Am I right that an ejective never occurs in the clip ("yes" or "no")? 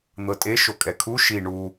no